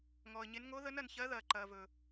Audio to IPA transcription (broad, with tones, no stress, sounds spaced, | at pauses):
ŋ ɔː˨ ə̯ ɲ e˧˥ n ŋ o˧˥ ð ə˧˥ n ɐ˨ n ç ɜ˧˥ ð ɐː˨ ǃ ɐː˨ v ɵː˨